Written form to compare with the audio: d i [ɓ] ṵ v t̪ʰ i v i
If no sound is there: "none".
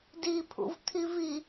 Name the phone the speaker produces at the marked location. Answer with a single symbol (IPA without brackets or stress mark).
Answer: pʰ